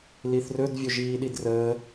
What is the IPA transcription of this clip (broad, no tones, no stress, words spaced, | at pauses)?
liθrɵd vʲɵʒiːɗidrəː